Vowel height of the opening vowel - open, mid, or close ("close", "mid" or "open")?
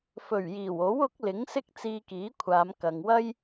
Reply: mid